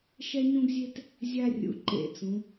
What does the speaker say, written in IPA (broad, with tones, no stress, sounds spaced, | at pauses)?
ʃ ɛ˦ ɲ ũ˦ ɡ zʲ e˦ t | zʲ a˦ rʲ ṵ˨ ǃ ḛ˦˨ t͡s ũ˨˦